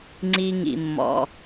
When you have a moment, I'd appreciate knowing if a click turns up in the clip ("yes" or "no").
yes